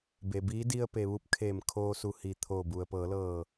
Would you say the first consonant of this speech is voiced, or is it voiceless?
voiced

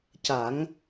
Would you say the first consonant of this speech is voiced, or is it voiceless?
voiceless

